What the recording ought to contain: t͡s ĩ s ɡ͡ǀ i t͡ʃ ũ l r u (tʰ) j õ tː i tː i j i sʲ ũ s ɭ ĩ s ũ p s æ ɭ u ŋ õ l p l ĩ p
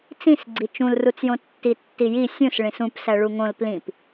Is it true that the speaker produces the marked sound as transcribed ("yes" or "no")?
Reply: no